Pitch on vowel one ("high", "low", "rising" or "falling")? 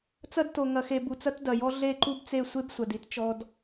high